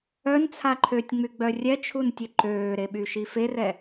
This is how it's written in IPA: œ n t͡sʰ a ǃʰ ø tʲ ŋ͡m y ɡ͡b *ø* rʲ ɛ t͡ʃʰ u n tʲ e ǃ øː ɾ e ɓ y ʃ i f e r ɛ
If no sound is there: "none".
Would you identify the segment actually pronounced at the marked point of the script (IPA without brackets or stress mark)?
œ